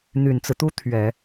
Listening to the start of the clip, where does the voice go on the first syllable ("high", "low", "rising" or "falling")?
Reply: low